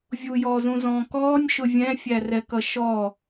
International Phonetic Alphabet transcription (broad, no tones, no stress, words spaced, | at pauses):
vʲujɔːzũzɔ̃ː kɔːnʲʃʊ vʲɛ̃fʲærɛkʌ ʃɔ